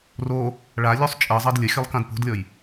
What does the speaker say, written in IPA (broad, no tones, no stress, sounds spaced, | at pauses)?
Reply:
r o | ɭ a lʲ u sˤ t͡ʃʼ ə zˤ ʌ d lʲ ə xʲ ʌ lˠ k ã d p o̤ d lʲ ɔ j